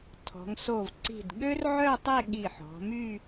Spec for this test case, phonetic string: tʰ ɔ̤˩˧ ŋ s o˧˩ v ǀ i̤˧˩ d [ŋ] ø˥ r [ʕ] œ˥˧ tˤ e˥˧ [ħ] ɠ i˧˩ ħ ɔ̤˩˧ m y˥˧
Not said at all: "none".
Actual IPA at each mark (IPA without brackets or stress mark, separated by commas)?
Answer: ɠ, ʕ, none